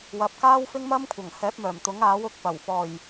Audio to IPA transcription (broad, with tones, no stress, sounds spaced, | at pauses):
w ɐ˨˥ p̚ k aː˥ w f ɪ˥ ŋ m ɐ˥ m kʷʰ ɐ˨˩ ŋ h ɛː˨˥ p̚ m œː˨˩ m t̪ ʊ˨˥ ŋ aː˨˥ w ʊ˨˥ k̚ p ɐ˨˩ w f ɔː˨˩ j